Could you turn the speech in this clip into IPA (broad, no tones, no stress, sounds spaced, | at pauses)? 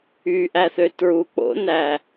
y ʔ æ θ ø t ɹ u k͡p o̰ n æ